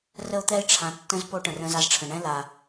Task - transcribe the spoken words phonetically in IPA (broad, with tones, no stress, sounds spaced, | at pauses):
r ə˦ o̯ t̪ ɛ˦ e̯ ʈ͡ʂʰ ã˨ tː ə̃˦ z p o˦ ʈ ə̃˨ r ə̃˦ z a˦ z ʈ͡ʂʰ ə̃˨ ɳ ɛ̃˦ l a˨